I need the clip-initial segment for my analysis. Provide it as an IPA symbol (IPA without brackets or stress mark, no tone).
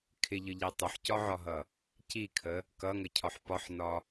kʰ